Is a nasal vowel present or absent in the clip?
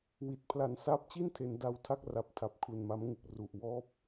absent